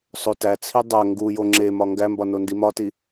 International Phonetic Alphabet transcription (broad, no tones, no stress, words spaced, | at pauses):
sˤotæt͡sʰi dˤæ ŋɡujo ŋ͡ǁemɒ ŋɡæmbɒ nondimɒti